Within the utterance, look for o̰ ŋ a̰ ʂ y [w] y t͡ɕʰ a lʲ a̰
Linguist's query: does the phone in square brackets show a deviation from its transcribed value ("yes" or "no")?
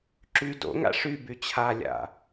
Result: yes